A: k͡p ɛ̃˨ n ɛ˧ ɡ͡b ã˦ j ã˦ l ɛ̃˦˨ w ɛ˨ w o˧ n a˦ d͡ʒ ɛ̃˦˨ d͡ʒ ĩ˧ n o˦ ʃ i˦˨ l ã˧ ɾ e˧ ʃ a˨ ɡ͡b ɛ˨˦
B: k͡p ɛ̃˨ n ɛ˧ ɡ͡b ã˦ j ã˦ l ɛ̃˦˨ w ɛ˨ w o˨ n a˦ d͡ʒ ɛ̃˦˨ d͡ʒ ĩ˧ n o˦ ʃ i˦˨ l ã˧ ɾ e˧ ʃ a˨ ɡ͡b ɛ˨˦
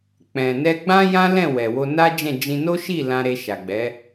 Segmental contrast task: A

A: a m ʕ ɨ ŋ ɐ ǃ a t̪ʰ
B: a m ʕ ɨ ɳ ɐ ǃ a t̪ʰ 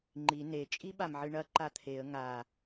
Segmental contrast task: B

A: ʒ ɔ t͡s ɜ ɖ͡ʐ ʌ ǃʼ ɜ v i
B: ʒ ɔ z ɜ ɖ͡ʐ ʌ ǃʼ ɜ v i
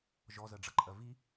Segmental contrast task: B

